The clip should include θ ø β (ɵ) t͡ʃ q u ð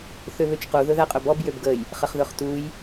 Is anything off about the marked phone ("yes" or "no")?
yes